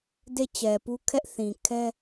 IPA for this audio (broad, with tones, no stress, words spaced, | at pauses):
de˦˨t͡ɕɛ˨pu˦kʰɛ˦ʔ θĩ˨ kʰɛ˦